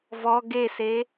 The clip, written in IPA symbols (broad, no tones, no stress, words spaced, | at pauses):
vɔ ɡese